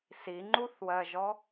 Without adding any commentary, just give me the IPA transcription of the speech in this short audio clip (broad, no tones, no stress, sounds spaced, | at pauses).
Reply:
s i ŋ͡ǃ u θ w ɜ ʒ ɔ